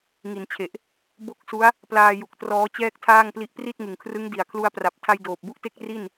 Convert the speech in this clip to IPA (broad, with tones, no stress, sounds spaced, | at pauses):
ŋ i˩˦ n t͡ɕʰ e˨˩ ʔ | b o˥˩ k̚ s u˦˥ a̯ | p l aː˧ j u˨˩ k̚ t r ɔː˦˥ t͡ɕ ɛː˥˩ k̚ tʰ aː˥˩ ŋ p l i˦˥ ʔ p r i˥˩ t̚ ŋ ɯ˨˩ ŋ kʰ r ɯ˦˥ ŋ d i˨˩ a̯ kʰ l u˦˥ a̯ p r a˨˩ p̚ tʰ a˧ j d oː˨˩ p̚ b u˥˩ ʔ t e˥˩ k̚ r i˥˩ n